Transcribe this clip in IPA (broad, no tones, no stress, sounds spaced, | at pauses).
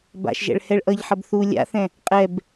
b a̰ ʃ ʒ ɛ̰ ɭ h ɛ ɭ ʔ ʌ ʎ ħ ʌ b θ u lʲ a̰ θ ɛ̃ | qʼ ɛ b